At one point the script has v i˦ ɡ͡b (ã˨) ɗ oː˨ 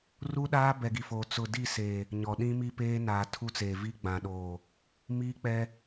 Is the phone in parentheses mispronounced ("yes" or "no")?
no